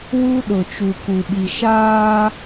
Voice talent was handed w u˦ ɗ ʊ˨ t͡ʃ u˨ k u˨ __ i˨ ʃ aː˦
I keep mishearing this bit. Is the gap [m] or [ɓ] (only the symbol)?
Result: ɓ